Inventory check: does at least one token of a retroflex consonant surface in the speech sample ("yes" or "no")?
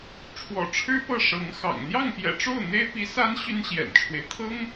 yes